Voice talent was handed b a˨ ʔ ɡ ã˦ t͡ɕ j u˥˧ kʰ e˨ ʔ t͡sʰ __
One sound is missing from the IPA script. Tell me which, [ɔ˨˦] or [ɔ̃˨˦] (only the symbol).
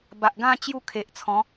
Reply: ɔ̃˨˦